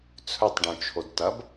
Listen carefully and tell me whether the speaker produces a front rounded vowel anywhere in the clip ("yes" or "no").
yes